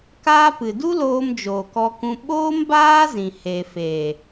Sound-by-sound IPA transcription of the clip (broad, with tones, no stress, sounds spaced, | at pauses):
k aː˦ p ɨ˨ d u˦ l oː˧ m d͡ʒ oː˨ k ɔ˧ k ũ˧ ɓ oː˦ m b aː˦ z ĩ˨ h e˨ f e˨